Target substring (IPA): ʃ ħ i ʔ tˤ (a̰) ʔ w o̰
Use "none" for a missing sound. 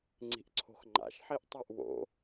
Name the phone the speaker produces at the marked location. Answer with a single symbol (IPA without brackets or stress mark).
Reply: a